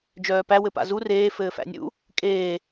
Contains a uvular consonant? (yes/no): no